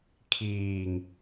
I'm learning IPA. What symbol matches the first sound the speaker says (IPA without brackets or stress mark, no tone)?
kʰ